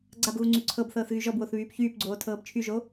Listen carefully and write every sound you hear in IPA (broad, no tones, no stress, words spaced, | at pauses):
ɡ͡ǀabɣu ŋ͡ǀyǀʰɤbθɤːθ ɣyʒɔbwoθ βyːpçyːpɡ͡ǀoː tʰɤːbt͡ʃʰyʒo